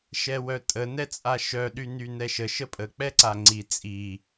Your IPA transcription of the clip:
ʃɛwœtʼə nɛt͡sʼaʃœ ɗynynɛʃə ʃəpʼə k͡pɛǀaŋ͡ǀi t͡sʼi

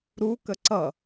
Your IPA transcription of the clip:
ɾu kəǀʌ

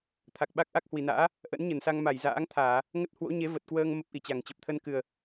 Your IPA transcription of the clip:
t̪ʰa˨˩k̚ɓa˦˥k̚ ʔa˦˥k̚hwi˨˩na̰ː˧˥ | ʔə̰˧˥nɲə˧˩nsa˧ŋ ma˧˩j za̰ː˧˥ŋt̪ʰaː˧˩˨ | ŋə˦˥t̚ hwo̰˧˥ɲe˨˦ və˨˩t̚kwəː˧ŋ mə˦˥p̚ʔi˨˩t͡ɕa˨˩ŋt͡ɕə˨˩p̚ t̪ʰə˧nkɨ˨˩ə̯

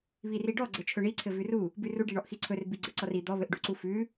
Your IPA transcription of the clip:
βiriɖɔ ɡ͡ǀɘt͡ʃʰɵɳi ǀʰɘvʉru | bʉru ɖiɳɔʔxiǀʰɵr biɡ͡ǀɘǀɔri d̪ɔ βɘʔɖuǀufʉ

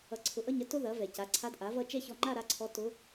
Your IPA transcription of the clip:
ʌ˧ǀʰʊ˧ ʔʌ˥˧ɲɐ˥ tʊ˥ðɐ˩˥ vɛ˩ca˩˥ǀʰa˧˥d ʔa˩˥vʌ˥˧ t͡ʃɛ˥˧çɔ˧ŋ͡ǃa˥˧ ɾa˧˥ǀʰɔ˧˥ tʊ˧˥

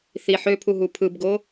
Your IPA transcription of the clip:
θi ħøpʰu ɦupʰɯbɡo

